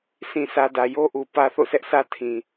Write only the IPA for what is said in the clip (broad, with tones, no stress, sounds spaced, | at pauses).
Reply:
sʰ ĩ˨ sʰ ä˨ d ä˨ j o˦ ʔ u˨ p ä˦ θ o̰˦˨ s ɛ˦ ʔ sʰ ä˦ tʰ ĩ˨